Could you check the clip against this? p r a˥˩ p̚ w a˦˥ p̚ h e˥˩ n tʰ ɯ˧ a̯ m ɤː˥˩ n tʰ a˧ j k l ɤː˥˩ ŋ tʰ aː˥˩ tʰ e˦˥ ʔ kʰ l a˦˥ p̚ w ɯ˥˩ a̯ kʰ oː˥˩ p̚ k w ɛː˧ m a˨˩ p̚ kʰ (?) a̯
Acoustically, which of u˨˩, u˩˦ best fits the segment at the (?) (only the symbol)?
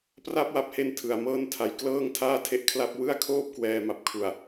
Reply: u˨˩